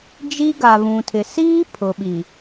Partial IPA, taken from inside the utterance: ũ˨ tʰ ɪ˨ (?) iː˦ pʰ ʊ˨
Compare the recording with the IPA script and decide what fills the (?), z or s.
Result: s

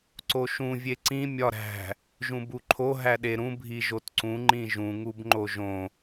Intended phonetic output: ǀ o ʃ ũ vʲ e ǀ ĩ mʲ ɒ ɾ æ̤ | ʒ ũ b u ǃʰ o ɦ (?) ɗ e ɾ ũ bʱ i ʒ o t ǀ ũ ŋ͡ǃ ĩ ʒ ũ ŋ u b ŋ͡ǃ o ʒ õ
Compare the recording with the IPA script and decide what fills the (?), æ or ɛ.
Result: æ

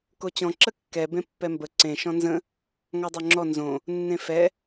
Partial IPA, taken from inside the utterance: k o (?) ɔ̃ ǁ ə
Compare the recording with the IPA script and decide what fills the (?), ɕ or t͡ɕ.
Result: t͡ɕ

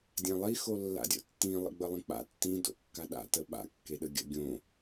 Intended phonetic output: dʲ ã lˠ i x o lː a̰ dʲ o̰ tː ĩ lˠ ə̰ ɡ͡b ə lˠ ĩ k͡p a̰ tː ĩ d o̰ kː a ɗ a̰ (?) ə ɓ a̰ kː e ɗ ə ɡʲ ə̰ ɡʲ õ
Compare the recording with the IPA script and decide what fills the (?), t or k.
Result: t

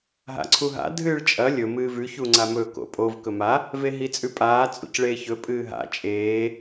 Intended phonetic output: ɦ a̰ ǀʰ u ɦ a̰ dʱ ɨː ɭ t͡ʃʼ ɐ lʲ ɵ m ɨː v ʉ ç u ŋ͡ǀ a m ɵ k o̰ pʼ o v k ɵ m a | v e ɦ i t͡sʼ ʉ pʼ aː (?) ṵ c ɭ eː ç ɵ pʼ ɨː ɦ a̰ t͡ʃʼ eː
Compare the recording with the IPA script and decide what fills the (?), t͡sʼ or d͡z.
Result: t͡sʼ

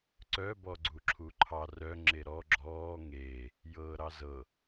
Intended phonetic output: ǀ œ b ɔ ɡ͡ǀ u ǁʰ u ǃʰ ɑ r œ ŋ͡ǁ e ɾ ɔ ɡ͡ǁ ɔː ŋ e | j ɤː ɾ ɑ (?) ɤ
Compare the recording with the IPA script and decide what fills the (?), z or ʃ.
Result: z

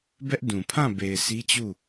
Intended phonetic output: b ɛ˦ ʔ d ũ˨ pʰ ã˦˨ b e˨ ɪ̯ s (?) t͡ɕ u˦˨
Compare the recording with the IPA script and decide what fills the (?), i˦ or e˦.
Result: i˦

